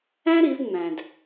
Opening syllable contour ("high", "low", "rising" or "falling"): high